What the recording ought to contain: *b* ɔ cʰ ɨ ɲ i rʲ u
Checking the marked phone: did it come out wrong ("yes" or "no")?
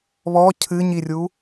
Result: yes